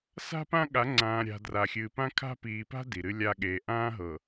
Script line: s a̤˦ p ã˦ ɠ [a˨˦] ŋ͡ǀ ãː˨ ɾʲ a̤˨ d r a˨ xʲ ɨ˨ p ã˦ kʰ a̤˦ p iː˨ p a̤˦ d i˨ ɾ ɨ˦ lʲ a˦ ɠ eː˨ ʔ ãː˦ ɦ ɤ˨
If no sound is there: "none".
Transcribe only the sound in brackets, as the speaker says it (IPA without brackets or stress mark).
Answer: a˨˦